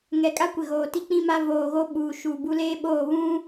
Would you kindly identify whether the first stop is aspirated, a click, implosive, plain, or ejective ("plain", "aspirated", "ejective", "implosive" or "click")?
ejective